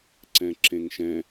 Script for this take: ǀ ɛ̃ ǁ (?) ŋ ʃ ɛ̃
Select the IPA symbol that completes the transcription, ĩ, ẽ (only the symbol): ẽ